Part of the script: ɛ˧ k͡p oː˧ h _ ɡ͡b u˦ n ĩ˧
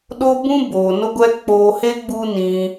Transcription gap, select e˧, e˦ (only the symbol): e˦